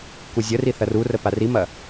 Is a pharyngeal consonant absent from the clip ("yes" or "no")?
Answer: yes